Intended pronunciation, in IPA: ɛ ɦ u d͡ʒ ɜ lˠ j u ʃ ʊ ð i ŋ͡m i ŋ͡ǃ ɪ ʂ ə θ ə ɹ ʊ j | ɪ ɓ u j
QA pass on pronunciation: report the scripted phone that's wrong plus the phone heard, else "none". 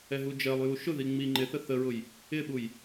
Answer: ʂ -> θ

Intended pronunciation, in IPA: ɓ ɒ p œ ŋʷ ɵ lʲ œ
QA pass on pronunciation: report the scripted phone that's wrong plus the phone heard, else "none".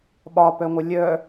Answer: ɵ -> œ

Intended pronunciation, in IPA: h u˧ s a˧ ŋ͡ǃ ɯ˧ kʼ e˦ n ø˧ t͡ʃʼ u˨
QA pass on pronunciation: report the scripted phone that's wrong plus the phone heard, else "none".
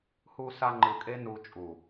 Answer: ø˧ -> u˧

